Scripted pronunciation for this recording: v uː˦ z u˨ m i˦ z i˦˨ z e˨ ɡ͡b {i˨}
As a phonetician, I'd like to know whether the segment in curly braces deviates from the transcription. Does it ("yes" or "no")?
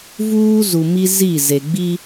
yes